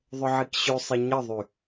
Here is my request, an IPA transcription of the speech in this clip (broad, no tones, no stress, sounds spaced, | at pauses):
ðˤ ʊ ʕ i k ɕ ʉ sˤ i ɲ ə ðˤ y